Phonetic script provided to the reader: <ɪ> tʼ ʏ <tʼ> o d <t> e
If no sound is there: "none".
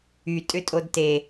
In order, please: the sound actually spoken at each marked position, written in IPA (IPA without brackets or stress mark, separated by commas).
y, tʼ, t